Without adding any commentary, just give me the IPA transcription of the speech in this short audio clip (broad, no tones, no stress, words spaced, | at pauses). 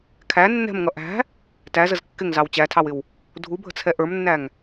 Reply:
kʰæ nːɛ̤mŋʌ ʔæ̤ | tæzəz kːɪŋzɑw t͡ɕætʰɑwɪw | dʱubʱə̤t͡sʰɛ ʔə˞mnːæŋ